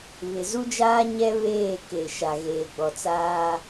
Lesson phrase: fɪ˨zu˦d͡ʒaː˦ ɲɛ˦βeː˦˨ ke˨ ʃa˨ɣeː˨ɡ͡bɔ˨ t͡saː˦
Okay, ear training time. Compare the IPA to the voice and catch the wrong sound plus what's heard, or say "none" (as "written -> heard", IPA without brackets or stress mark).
f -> β